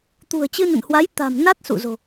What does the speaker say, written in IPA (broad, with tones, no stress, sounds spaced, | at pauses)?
t̪ ṳ˨˩ ə̯ t͡ɕ ɨ˧ n ə̰˧˨ n h w a˨˦ j t̪ a̤˨˩ m n a˦˥ t̚ s ṵ˧˨ z o̤˨˩